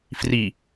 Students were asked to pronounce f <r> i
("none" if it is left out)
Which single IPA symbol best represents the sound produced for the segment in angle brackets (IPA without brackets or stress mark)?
r